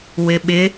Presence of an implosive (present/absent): present